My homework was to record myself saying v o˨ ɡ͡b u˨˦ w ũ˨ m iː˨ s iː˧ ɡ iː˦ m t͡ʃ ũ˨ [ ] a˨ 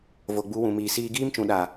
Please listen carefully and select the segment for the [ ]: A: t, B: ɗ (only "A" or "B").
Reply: B